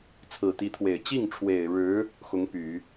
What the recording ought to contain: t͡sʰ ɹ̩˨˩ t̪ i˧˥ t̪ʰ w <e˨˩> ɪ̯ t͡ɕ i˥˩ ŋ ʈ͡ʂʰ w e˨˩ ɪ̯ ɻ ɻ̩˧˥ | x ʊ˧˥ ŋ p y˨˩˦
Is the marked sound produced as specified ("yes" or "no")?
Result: yes